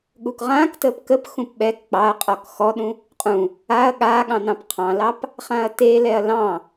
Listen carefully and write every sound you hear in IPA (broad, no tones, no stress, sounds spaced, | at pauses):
ɠ u k ʁ ãː k t əː p k ə p x ũ p ɓ ɛ k k͡p ɑ ɐ̯ qʼ ɔ k x ɔ ɗ ũ | qʼ ũ | a ɐ̯ ɠ aː ɠ ɑ̃ n ɑ̃ p qʰ ɑ̃ l ɑ p | χ ã ɐ̯ t e l ɛ ɐ̯ l ɑ̃